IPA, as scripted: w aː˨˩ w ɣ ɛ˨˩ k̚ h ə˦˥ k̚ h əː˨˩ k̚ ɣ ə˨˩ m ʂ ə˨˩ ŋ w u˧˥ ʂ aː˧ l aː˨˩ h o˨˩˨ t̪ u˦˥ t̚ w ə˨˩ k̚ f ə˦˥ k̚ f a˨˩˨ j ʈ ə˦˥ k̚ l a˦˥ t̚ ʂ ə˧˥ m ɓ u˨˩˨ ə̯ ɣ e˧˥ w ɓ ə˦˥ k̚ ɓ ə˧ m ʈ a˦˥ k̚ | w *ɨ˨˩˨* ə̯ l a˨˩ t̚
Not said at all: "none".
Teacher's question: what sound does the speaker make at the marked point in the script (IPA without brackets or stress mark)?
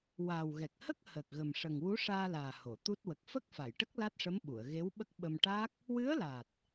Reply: ɨ˧˥